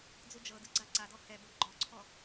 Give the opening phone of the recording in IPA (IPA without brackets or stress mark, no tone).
d͡z